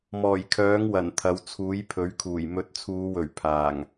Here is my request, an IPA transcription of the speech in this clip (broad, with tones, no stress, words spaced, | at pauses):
mɔː˨˩jkʰœː˨˥ŋwɐ˨˩n t̪ʰɐ˨˧wt͡sʰuː˨˥jpʰɵ˨˥ɥkʰuː˨˩j mɵ˨˥t̚t͡sʰuː˨˧wɵ˨˩ɥ pʰaː˨˩ŋ